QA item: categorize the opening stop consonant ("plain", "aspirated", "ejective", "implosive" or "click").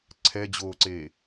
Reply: click